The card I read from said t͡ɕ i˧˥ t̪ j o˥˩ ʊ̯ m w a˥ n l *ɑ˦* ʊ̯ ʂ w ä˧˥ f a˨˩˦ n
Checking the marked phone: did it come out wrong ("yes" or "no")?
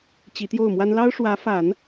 yes